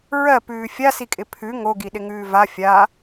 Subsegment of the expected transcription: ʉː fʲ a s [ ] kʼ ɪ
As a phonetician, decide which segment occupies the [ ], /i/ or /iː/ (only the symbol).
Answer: i